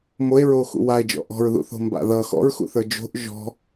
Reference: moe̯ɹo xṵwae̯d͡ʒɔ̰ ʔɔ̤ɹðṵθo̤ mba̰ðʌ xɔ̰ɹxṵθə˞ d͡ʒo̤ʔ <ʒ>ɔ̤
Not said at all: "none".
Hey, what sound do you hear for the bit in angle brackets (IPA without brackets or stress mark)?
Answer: ʒ